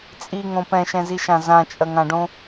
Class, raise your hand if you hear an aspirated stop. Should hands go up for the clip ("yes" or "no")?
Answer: no